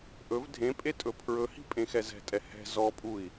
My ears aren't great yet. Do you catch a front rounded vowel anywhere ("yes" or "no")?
no